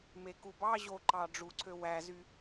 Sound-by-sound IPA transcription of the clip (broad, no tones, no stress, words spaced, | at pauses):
mekubɑ ʑoǃɑ ɖ͡ʐuǀʰø wæzy